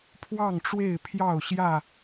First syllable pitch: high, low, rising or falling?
falling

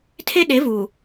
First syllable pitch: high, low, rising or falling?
high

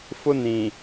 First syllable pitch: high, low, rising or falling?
high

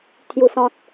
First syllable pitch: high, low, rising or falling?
low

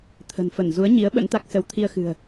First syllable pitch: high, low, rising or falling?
low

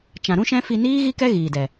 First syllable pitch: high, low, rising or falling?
low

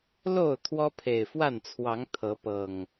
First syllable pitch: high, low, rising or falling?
falling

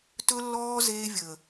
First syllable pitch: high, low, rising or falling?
high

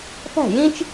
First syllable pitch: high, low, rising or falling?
falling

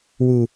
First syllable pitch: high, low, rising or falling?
low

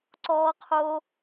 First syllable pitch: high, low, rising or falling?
high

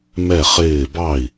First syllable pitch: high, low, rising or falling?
falling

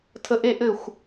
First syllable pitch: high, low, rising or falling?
high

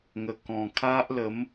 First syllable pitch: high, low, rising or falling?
low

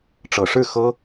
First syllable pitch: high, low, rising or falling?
low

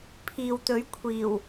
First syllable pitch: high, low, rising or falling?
low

